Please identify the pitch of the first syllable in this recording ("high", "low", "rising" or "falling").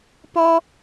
high